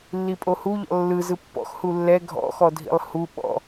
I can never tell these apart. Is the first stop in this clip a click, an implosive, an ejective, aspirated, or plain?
ejective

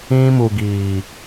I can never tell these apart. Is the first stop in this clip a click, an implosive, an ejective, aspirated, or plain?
plain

